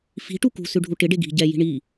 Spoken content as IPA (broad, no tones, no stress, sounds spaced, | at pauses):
f i̤ ʈ u k ṳ s ʉ ɖʱ u ʈ ɪ ɖ e ɡ i̤ ɟ ɛ j i̤ ɳ i